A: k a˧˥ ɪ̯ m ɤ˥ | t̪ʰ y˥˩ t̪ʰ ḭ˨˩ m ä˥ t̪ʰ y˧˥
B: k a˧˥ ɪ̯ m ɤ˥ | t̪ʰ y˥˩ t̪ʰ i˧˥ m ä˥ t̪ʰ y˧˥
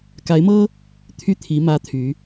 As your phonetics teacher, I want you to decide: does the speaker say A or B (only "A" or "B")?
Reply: B